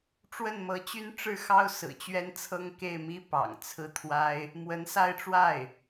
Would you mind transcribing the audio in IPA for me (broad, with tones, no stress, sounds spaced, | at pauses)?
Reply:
ʈ͡ʂ w ə˥˩ n m ɤ˧˥ t͡ɕ y˥ n ʈ͡ʂ ɻ̩˥˩ x ɑ˥ ʊ̯ s ɹ̩˨˩ t͡ɕ ɥ ɛ˥ n t͡sʰ ɤ˥ ŋ k e˥˩ ɪ̯ m i˥ p ɑ̰˨˩ ŋ t͡sʰ ɹ̩˥˩ t̪ʰ w a˥ ɪ̯ | m w ə˧˥ n s a˥˧ ɪ̯ ʈ͡ʂ w a˥˩ ɪ̯